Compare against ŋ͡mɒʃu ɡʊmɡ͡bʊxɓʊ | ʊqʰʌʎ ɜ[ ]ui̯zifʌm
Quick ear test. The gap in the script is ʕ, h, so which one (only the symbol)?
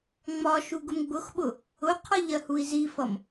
h